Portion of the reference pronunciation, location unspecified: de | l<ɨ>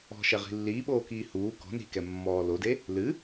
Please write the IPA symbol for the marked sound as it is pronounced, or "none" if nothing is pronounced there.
ɨ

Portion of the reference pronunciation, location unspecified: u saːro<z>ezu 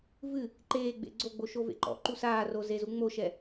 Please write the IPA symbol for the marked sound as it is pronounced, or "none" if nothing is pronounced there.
z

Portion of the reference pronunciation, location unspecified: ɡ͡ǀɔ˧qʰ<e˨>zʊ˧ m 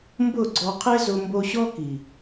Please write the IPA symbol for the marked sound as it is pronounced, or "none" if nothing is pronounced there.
e˦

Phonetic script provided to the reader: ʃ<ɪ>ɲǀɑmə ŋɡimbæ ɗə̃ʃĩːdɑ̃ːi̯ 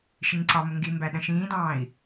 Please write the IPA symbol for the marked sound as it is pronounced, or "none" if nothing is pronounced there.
ɪ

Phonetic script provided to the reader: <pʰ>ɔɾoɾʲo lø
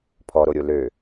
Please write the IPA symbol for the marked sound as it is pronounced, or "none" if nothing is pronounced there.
pʰ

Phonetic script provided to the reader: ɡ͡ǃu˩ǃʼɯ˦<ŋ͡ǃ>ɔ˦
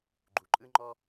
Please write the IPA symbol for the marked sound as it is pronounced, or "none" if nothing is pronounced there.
ŋ͡ǃ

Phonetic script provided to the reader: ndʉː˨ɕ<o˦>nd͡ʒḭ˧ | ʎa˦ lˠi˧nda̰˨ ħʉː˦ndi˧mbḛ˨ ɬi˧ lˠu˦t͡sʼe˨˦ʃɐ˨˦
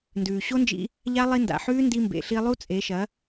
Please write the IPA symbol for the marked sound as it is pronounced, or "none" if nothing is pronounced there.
o˦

